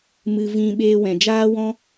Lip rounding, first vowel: unrounded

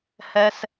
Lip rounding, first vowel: unrounded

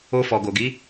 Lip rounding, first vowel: rounded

